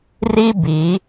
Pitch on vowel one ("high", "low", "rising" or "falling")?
high